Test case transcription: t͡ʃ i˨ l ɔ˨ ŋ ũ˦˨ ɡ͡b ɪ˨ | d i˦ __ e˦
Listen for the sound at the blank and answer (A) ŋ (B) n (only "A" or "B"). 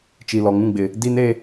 B